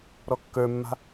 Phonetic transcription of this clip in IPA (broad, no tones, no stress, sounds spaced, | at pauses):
ɾ ɔ kː ə˞ mː a̤